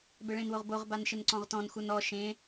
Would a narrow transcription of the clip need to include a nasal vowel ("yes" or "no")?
yes